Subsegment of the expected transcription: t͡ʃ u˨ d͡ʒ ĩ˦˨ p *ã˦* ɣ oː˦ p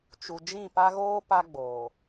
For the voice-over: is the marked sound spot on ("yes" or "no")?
no